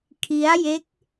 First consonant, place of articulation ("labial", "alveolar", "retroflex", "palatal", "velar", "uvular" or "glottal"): velar